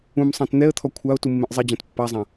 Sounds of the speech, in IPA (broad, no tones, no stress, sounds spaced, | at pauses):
ũ m sˤ ã t n̪ ɛ ə̯ t̪ʰ ɔ kʷʰ a ʊ̯ t u mː ẽ ʔ zˤ e d͡ʑ ã t pː a zˤ ã